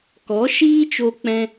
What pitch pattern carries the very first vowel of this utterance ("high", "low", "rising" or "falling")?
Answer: rising